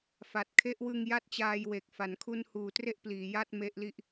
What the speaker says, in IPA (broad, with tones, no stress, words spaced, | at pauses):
fa˨˩t̚kʰe˦˥ʔwɯ˧ŋ ja˥˩t̚t͡ɕaː˧j we˨˩k̚fa˩˦nkʰu˧nhuː˩˦ tre˥˩ʔpliː˩˦ja˥˩t̚ me˦˥ʔli˦˥ʔ